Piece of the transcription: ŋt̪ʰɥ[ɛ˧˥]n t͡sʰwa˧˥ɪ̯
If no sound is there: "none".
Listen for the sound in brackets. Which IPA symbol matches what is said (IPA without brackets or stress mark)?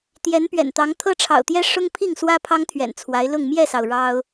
ɛ̰˨˩